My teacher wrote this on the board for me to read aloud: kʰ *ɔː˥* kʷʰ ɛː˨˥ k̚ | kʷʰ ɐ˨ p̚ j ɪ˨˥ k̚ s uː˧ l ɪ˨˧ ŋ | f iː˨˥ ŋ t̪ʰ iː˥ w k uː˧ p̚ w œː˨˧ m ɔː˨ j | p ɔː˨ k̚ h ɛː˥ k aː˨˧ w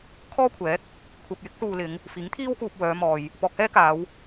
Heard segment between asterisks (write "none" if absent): ɔː˥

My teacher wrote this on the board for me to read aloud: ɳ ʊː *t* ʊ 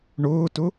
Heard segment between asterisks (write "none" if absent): t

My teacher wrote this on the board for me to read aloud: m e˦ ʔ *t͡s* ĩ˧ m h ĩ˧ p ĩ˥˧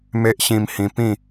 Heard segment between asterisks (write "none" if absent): ɕ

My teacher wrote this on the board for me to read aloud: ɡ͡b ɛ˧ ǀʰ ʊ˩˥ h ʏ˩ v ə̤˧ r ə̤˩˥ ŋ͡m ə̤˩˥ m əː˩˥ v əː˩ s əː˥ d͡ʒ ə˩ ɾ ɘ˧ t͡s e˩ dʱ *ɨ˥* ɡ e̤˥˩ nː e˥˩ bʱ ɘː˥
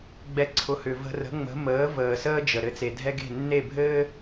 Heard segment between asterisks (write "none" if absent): ɛ˥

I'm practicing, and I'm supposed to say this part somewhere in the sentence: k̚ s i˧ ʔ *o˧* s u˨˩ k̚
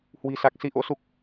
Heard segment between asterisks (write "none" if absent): o̰˧˥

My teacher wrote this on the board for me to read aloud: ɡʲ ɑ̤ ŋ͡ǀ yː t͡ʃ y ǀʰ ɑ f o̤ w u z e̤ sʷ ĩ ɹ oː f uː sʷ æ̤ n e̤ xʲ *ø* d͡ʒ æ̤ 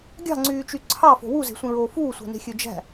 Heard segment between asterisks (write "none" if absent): ø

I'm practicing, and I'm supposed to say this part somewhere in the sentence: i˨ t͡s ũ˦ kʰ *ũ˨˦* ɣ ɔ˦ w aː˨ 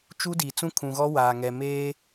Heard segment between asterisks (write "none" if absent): ũ˨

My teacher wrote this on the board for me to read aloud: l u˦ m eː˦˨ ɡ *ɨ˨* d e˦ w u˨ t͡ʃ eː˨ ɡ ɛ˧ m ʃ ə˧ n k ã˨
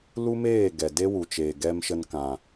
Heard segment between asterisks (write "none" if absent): ɛ˨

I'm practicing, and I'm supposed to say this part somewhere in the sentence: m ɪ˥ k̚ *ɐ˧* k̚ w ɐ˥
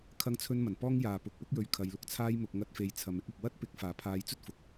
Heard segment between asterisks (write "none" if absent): ɐ˧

